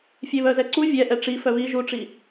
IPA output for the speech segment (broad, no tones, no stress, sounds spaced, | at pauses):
fʲ e β œ z ɛ ǀ u vʲ ɛ ʔ ɛ ʈ͡ʂ i f œ β i ʒ u ʈ͡ʂ i